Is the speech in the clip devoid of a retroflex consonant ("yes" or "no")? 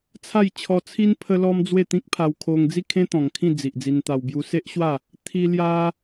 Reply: yes